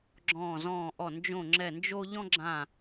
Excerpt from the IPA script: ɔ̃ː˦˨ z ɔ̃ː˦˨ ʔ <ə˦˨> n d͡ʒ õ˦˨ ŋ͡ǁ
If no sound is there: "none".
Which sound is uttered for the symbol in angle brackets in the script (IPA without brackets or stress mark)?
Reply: ɔ˦˨